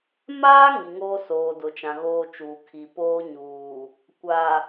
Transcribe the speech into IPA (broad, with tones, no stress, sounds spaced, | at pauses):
m aː˦ ŋ i˨ ŋ oː˦ s oː˨ d ʊ˨ t͡ʃ ã˨ ɣ oː˦ t͡ʃ uː˨ kʰ i˨ p oː˦ ɲ uː˨ | kʷ a˨